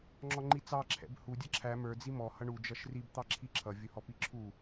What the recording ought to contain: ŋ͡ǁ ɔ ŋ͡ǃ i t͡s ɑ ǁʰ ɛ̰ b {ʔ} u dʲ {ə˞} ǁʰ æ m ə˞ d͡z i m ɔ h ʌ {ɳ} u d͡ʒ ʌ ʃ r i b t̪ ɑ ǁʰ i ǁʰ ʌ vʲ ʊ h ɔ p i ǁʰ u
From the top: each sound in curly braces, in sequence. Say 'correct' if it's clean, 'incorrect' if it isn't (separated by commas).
incorrect, incorrect, correct